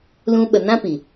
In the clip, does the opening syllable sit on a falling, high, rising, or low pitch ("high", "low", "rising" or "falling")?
high